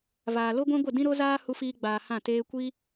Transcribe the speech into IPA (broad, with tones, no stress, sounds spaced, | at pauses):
v aː˨ l o˦ ɡʷ ɛ̃˦ ɡʷ ə˦˨ d ĩ˦ ɾ o˦ z aː˦ h u˦ f iː˦ ɡ͡b aː˧ h ã˦˨ t eː˦ kʷ i˦